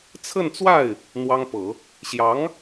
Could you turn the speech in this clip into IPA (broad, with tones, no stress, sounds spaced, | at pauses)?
t͡sʰ ə˥˧ n t͡s w a˥˩ ɪ̯ | n̪ w ɑ˥ ŋ p ɤ˨˩˦ | ɕ j ɑ˧˥ ŋ